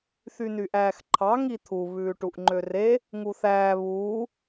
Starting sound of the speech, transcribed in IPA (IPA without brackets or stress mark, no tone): θ